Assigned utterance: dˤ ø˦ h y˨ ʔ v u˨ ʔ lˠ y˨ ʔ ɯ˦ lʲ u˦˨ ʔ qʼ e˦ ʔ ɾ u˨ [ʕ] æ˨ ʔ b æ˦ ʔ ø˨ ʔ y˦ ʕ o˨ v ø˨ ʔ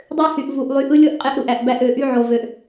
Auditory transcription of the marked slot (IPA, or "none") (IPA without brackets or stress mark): ʔ